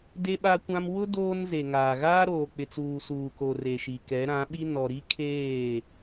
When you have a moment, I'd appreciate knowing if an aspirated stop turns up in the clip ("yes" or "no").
yes